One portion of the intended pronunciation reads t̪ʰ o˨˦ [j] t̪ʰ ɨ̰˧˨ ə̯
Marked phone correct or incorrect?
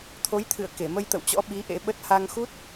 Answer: correct